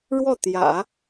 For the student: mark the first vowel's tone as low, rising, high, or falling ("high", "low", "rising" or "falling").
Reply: falling